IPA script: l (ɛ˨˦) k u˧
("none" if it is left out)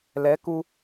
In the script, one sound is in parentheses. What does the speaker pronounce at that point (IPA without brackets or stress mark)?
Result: ɛ˨˦